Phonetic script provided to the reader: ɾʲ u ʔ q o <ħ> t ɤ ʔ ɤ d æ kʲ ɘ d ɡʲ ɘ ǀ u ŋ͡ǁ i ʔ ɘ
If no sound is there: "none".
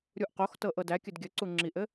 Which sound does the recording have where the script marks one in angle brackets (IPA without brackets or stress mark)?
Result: x